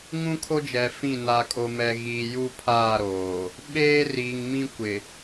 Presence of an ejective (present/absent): present